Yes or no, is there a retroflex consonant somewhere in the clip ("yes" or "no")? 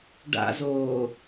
yes